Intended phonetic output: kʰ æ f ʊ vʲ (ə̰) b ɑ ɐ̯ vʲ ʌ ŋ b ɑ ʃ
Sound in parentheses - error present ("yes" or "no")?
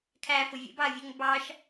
no